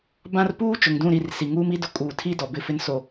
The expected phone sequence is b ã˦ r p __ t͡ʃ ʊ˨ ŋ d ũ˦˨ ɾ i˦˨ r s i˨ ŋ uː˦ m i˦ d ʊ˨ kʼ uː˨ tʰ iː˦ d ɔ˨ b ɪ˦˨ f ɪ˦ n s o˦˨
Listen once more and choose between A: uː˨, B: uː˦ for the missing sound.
B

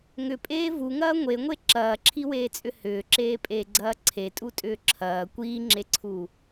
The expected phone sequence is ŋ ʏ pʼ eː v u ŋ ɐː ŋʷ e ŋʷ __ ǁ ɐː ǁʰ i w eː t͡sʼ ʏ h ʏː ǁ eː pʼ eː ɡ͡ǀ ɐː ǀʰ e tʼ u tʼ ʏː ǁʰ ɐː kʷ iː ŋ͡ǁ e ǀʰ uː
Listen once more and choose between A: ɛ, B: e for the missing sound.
B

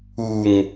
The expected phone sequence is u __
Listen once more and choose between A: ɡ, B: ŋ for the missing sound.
B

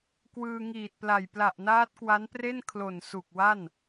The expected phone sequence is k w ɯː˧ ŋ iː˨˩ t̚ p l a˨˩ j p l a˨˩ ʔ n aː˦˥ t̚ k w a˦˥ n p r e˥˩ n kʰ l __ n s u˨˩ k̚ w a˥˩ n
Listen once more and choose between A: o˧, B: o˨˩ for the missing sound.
B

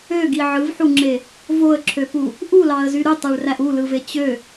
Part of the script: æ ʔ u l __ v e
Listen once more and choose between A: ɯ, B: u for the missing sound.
A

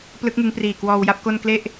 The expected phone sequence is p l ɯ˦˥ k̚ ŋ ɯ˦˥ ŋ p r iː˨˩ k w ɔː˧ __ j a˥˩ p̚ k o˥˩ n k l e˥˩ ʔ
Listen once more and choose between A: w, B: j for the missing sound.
A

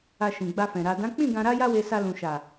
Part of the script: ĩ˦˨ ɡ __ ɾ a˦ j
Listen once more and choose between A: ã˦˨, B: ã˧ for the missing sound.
B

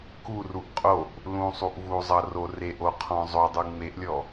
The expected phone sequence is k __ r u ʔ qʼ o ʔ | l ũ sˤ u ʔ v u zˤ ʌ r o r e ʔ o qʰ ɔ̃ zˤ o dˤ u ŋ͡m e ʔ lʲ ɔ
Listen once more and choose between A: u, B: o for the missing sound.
A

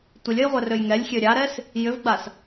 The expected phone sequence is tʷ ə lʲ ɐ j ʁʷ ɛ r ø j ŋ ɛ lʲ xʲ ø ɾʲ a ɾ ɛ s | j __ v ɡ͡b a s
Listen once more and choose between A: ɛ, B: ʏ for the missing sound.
B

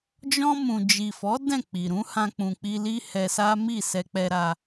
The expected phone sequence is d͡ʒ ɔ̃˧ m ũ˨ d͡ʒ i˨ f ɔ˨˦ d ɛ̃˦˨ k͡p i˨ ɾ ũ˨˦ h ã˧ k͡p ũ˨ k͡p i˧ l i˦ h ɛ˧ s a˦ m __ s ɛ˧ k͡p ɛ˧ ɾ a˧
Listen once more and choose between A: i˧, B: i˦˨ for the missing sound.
B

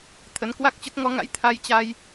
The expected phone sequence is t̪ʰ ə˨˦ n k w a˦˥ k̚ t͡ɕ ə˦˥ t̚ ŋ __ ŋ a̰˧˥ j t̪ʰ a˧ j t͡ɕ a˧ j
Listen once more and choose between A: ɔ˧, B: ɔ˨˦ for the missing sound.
B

